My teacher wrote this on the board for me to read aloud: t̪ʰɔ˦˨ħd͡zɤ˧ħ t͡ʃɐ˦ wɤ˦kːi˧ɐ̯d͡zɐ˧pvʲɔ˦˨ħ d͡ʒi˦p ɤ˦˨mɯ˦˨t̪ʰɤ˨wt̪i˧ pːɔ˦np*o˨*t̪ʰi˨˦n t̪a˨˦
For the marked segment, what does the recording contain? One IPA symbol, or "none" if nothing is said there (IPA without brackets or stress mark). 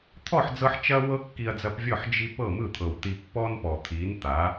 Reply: ɔ˨